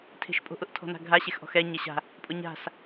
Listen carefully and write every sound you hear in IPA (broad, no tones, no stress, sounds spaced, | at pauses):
tʰ e̤ ʃ pʼ o̤ ʔ ʊ ʔ tʰ ɔ̤ n a̤ ɡʱ a ɕ e x ʔ ɔ̤ x ɛ ɲ ɛ ɕ a̤ | pʼ ʊ ɲ a̤ s